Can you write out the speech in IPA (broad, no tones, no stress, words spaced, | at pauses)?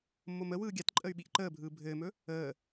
mːoməwɯː ɡʲatǃʼəy̯ ɓiʔǃəːbʱɯː bʱɘːmɵ | əː